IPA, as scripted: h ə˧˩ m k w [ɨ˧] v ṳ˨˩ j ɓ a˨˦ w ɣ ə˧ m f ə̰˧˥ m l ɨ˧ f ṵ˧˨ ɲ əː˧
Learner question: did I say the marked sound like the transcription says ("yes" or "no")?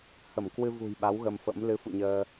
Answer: yes